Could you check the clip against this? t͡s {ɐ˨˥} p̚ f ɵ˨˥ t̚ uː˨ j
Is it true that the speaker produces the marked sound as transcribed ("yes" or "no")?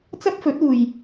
no